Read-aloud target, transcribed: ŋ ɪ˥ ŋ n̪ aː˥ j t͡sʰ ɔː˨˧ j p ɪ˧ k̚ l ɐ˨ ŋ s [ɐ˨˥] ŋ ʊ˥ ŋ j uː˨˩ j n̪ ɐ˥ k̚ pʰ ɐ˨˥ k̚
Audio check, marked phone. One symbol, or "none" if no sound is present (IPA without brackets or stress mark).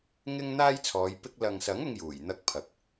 ɐ˨˥